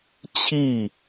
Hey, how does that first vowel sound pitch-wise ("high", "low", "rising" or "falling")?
falling